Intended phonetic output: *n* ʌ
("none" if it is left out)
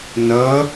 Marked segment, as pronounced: n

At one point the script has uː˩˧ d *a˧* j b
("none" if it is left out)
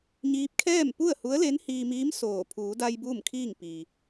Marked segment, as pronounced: a˧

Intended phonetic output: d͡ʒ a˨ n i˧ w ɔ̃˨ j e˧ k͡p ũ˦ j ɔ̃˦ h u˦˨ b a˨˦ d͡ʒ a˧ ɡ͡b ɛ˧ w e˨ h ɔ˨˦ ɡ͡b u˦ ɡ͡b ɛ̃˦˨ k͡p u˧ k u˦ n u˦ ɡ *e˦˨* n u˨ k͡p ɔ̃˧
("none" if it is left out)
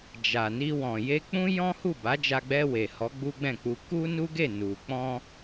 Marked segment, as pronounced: e˦˨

